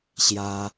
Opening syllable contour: high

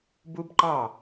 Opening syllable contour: high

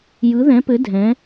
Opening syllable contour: rising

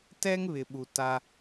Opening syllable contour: high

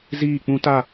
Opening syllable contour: falling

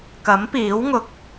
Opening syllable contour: rising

